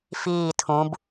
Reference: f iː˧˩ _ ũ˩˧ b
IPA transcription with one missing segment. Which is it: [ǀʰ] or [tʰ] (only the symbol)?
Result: tʰ